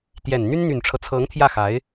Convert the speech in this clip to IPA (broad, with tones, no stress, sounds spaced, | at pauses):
t̪ j ɛ˨˩ n n̪ y˥ n n̪ y˨˩ n ʈ͡ʂʰ ɤ˦ t͡sʰ ɤ˧˥ ŋ t̪ʰ j ä˥˩ x a˧˥ ɪ̯